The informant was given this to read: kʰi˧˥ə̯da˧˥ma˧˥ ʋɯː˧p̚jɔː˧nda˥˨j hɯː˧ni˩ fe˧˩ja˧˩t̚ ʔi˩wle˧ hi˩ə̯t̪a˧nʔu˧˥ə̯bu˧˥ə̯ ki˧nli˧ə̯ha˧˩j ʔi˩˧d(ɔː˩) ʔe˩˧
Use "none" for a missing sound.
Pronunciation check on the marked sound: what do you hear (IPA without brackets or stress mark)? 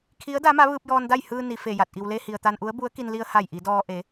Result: ɔː˧